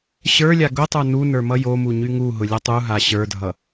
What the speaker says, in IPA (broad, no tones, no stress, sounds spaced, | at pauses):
ɕ ə˞ lʲ a ɡ ʊ tˤ ə˞ n u n ə˞ m ʌ j o m u ɲ y ŋ u ɦ ʊ lʲ ʌ tˤ u ɦ a ɕ ə˞ dʱ ʌ